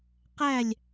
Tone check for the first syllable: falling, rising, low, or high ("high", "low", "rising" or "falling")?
falling